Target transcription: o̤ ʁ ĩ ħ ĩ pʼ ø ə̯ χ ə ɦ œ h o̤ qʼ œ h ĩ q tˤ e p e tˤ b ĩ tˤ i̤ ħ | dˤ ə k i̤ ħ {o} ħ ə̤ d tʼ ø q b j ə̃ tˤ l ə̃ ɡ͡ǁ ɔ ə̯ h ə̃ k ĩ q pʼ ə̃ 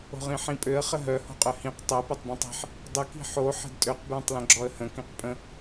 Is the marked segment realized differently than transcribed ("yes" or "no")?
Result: no